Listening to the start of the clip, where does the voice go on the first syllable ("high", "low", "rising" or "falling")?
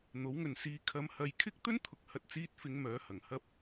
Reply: rising